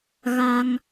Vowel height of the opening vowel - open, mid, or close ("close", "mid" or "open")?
open